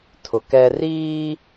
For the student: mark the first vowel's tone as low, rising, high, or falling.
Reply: rising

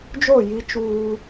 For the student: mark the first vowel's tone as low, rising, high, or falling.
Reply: falling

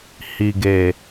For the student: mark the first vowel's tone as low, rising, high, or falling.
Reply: low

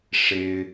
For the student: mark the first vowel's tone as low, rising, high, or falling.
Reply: high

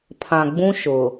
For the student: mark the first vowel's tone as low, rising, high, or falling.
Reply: low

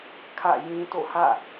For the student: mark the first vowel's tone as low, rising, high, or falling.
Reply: falling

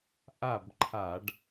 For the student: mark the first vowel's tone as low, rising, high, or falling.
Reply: falling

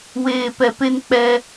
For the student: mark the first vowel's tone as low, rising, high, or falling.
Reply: low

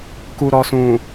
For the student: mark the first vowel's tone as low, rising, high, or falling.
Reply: low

